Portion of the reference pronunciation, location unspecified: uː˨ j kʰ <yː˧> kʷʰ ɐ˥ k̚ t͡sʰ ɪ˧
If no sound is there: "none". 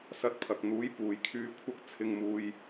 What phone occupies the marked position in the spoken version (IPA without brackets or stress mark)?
yː˧